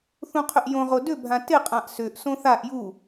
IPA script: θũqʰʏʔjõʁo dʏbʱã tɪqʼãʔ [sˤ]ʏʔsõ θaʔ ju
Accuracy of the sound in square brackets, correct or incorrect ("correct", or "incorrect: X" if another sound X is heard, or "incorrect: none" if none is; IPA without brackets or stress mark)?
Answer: incorrect: s